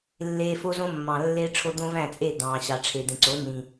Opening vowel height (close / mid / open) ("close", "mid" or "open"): mid